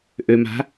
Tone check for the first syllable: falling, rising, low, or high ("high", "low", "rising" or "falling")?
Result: low